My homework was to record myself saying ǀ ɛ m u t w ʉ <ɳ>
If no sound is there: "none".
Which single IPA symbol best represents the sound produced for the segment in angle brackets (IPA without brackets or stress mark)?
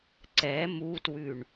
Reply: ɳ